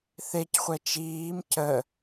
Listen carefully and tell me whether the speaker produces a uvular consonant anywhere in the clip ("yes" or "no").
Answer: yes